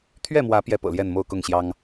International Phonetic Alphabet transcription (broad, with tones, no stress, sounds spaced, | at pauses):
t̪ʰ ɥ ɛ˥˨ m w ä˨˦ p j ɛ˦ p ɤ̰˨˩ l j ɛ˥˨ n m o˥˨ ʊ̯ k ʊ˥˨ ŋ ɕ j ɑ˦ ŋ